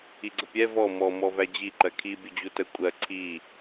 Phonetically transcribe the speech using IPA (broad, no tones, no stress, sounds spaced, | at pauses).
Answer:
i ɡ͡ǀ ə pʲ ɛ v ɔ m ɔ m ɔ v æ d͡ʑ i ǃ ɜ kʰ i bʲ ʊ d͡ʑ u t ə kʷʼ ɜ ǀʰ i